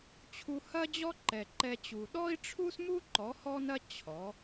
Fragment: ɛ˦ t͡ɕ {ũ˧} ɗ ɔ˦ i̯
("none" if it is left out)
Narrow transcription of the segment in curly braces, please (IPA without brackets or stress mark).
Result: u˧